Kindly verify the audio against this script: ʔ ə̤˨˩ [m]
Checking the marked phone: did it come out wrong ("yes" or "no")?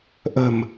no